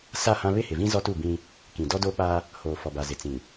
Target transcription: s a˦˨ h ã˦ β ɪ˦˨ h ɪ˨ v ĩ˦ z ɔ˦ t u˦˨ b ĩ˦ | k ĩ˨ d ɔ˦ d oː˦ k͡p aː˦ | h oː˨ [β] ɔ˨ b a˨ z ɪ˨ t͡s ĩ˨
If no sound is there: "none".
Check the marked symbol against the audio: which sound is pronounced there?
f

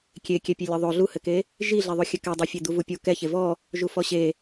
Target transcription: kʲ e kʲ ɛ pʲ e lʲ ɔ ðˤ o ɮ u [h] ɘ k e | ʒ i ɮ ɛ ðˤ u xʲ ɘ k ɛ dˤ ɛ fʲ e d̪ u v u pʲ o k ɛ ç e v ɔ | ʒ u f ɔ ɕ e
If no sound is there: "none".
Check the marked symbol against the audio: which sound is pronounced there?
h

